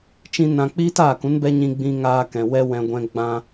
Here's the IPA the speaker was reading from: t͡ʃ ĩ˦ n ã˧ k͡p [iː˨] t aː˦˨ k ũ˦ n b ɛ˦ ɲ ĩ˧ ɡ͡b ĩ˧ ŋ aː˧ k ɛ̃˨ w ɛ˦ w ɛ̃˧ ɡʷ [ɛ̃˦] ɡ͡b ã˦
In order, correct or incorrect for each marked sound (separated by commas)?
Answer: incorrect, correct